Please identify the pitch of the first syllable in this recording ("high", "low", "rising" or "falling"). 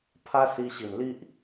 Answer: high